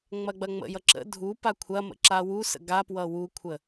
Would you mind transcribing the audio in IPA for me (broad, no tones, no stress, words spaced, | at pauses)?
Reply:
ŋ͡mɐɡ͡bɐŋ͡mə̰jʌ ǁə̰ dʱupa kʷʰɐmə̰ ǁawusə̰ ɡapwʌ wukʷʰə